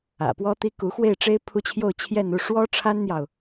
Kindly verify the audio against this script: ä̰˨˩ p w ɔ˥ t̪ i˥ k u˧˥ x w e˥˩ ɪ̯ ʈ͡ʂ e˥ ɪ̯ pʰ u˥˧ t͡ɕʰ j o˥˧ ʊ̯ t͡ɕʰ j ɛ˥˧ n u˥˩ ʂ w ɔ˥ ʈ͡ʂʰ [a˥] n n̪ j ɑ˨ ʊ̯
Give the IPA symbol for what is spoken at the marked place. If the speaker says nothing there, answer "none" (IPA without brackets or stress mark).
a˥